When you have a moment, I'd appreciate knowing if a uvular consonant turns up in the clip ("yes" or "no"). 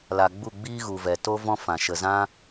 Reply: no